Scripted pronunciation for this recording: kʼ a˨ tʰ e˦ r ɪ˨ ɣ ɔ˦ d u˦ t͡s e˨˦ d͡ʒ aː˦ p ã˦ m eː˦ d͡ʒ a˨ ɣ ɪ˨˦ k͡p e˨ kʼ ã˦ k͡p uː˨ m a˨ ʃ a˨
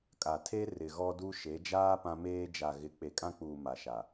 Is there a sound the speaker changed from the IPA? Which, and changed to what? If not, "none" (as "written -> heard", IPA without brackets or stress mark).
t͡s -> ʃ